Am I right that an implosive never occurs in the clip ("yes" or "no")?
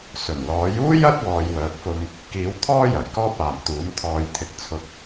yes